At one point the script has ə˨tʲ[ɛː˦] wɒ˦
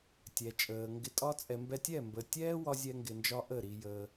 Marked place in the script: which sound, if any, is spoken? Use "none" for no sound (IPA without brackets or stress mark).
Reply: ɛː˦